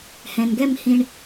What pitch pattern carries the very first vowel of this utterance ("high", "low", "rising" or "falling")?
low